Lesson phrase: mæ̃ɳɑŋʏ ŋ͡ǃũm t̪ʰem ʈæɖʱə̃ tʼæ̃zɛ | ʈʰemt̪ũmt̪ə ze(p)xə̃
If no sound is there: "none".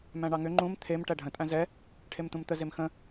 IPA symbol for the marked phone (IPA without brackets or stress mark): m